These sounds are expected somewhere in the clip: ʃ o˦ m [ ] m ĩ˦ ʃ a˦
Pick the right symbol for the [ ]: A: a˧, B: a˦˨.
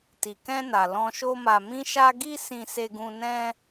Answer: A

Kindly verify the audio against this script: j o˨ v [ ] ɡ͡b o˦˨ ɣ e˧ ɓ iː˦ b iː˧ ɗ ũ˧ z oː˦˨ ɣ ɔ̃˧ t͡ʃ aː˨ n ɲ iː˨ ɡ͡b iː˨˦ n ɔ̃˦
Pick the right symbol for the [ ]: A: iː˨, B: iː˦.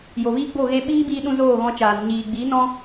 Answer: B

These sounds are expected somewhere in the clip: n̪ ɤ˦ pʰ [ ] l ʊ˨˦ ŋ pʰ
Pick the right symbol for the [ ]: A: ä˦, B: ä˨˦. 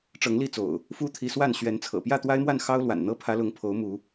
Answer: B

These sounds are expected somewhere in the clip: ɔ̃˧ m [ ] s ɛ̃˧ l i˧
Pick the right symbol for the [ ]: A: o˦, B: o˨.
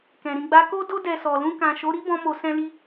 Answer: B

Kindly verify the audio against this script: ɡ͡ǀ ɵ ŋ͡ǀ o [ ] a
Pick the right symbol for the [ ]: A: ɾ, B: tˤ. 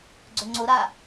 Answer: A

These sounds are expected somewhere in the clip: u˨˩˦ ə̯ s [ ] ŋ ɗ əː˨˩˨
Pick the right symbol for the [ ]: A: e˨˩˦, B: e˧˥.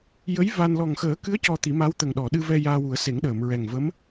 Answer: A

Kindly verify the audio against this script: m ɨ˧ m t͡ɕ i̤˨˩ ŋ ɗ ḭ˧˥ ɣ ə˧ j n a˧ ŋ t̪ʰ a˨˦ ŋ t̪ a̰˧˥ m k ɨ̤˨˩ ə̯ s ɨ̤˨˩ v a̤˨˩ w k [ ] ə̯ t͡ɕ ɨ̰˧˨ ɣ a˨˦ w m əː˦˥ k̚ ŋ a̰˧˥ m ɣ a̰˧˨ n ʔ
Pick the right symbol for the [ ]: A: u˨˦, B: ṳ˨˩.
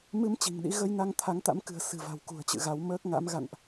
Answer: B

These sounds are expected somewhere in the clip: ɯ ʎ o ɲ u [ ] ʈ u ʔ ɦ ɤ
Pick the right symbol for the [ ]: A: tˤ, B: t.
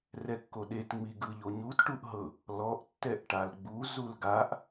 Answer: B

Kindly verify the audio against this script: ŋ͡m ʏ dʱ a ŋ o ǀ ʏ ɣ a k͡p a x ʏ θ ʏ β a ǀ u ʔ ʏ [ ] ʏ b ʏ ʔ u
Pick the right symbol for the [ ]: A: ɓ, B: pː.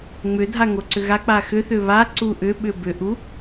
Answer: A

